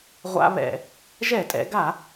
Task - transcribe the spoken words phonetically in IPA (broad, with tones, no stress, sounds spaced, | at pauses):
ʁʷ a̰˦ β ɛ̰˧˩˧ | ʒ ɛ˧˩˧ tʼ ɛ̰˩˧ ɡ a˧˩˧